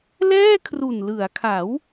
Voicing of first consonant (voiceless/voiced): voiced